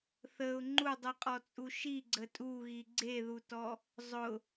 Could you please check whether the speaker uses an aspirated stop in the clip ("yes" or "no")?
no